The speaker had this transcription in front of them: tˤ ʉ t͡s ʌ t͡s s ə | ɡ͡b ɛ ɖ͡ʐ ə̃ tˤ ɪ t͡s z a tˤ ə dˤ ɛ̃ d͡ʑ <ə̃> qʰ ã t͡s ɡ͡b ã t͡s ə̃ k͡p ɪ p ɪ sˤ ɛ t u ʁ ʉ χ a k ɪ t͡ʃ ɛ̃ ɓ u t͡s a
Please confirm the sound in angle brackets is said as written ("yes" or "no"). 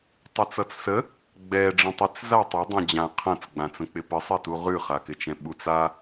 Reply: no